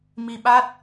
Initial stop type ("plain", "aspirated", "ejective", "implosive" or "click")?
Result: implosive